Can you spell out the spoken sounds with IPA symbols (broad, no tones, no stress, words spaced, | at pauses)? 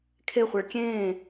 kʰeχʷaɭ kʲẽː